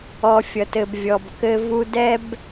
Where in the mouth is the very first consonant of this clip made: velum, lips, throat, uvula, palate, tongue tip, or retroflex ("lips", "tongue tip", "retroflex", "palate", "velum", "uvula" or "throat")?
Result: lips